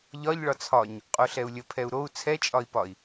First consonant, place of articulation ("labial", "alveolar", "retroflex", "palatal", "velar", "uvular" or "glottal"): palatal